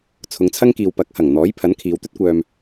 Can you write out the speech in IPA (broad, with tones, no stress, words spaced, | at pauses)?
t͡sʰʊ˨˧ŋt͡sʰɐ˥ŋkiː˨w pɐ˨˥k̚hɐ˨˩ŋ n̪ɔː˨˥jpʰɐ˨˥n kʰiː˨˧wt̪ɵ˥t̚kʷœː˧m